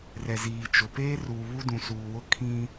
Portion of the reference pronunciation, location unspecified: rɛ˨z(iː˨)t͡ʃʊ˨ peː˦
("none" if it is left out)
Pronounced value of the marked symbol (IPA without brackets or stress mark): iː˨